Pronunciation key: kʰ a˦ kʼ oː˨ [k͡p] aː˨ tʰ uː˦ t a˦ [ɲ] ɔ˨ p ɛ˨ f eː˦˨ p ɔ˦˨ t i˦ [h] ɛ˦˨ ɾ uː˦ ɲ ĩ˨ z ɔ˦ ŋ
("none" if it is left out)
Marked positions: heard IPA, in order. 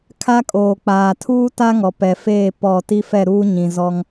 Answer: k͡p, ŋ, f

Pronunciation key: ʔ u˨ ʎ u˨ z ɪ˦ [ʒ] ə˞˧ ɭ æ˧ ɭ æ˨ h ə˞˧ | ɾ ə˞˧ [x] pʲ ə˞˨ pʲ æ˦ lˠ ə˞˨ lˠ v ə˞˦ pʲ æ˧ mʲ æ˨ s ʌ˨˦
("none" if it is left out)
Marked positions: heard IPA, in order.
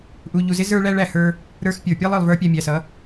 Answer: z, x

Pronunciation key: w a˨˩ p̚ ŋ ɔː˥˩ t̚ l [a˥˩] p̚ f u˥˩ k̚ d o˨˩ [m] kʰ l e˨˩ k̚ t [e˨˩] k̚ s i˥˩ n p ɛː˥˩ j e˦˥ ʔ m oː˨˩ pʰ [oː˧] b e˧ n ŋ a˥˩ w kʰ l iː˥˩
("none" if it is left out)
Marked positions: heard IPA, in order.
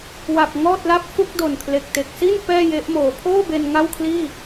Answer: a˥˩, n, e˨˩, oː˥˩

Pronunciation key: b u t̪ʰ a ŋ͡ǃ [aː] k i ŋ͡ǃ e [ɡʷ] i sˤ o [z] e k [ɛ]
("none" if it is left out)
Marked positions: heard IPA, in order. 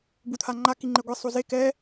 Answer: a, ɡʷ, z, ɛ

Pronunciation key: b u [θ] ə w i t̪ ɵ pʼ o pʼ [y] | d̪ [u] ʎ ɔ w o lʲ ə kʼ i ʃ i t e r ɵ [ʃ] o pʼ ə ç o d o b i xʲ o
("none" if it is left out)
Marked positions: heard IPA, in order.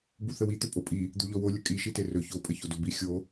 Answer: θ, i, u, ç

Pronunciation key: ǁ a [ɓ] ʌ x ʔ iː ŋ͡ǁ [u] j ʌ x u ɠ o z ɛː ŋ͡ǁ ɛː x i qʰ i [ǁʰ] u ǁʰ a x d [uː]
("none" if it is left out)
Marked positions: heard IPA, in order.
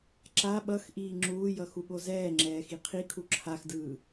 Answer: ɓ, uː, kʰ, ɯː

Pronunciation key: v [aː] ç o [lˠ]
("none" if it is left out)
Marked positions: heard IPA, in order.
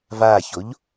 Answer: aː, ʎ

